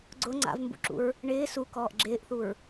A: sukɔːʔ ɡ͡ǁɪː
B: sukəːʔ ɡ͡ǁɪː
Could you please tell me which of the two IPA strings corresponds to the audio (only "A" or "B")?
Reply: A